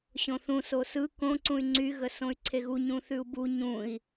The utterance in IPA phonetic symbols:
ɕ õ θ ũ s o s ɯ k õ ǀ ũ y̯ ŋ͡ǀ y ɣ ə s õ y̯ ǀʰ e ɣ u ɲ ũ θ ʉ u̯ b u ɲ ũ i̯

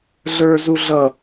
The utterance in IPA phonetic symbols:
ɮ ə˞ z u ɮ ʌ

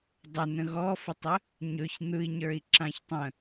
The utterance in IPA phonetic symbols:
dˤ ə n ə̃ ɣ ɔ f ə tˤ ə | ɲ ɵ ç n̪ ɯ i̯ ɲ ə˞ i̯ ǁ ã ç tˤ ə̃

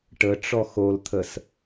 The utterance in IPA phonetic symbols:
ʈ ə ʈ͡ʂ ɔ x o l t̪ʰ ə s

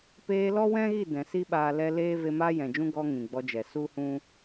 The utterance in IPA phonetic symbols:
p eː˧ l ɔ˦ w ɛ̃˦ ɣ i˦˨ d ɛ̃˨ s i˦ ɓ aː˧ l ɛ˧ l eː˦ v e˧ m aː˦ j ɛ̃˨ d͡ʒ ũ˦ ɡ ɔ˧ ŋ ĩ˨ ɡ͡b ɔ˧ d͡ʒ ɛ˨ s u˦ h ũ˦

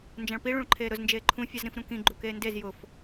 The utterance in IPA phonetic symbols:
n d͡ʒ ã ɭ p i ɭ ũ ɭ ǃʰ eː ɾ ʊ z n d͡ʒ eː ǃʰ ũ fʲ a z ɾ ĩ f ɾ ũ k ĩ ɡ͡ǃ u k eː n d e z j ʊ f

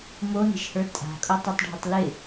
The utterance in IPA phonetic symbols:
m o n e̤ ʃ h ə˞ tʼ a̤ kʼ o tˤ o tˤ ɖʱ ɪ tˤ l ɪ

